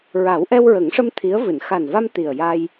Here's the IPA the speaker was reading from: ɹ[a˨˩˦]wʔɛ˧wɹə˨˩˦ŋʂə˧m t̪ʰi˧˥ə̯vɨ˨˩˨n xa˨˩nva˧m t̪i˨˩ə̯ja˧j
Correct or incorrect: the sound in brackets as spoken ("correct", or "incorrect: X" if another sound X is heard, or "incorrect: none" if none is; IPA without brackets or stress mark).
correct